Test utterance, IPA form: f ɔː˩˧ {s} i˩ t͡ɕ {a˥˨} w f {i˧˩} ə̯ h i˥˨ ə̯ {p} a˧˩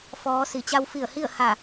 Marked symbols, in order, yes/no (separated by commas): yes, no, yes, no